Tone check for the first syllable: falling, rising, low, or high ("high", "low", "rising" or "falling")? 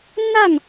falling